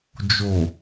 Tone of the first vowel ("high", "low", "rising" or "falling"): low